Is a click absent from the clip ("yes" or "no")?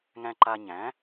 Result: no